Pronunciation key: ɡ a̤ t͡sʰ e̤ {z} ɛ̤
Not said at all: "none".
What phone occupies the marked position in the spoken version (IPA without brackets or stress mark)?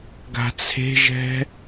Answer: ʒ